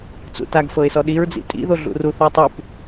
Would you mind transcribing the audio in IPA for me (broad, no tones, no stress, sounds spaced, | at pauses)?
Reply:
t͡s ṵ t a ɡ f ɤ ɪ̯ s ɔ ɗ i ɹ d͡z ḭ tʼ ḭ ð o ɮ ṵ r u θ ɔ tˤ u p